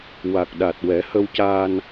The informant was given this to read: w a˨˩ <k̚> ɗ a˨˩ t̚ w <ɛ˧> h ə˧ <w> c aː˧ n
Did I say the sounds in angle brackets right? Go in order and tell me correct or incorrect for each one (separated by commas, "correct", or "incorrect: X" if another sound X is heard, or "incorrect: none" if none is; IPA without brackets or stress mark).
correct, incorrect: ɛ˨˩˦, correct